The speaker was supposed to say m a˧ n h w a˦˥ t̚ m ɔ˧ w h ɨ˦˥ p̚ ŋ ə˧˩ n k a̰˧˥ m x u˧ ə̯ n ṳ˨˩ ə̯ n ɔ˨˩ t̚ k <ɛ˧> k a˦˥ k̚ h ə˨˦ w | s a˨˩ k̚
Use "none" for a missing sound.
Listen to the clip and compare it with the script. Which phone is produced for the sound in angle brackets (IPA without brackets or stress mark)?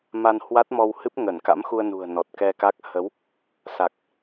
ɛ˧